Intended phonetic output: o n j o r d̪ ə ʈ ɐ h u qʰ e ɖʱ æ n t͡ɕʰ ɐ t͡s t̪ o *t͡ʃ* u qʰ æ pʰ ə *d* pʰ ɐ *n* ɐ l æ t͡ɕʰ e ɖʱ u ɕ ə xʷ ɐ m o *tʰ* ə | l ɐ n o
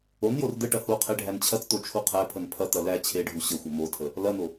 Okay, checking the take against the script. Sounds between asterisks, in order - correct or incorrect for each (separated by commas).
incorrect, incorrect, incorrect, correct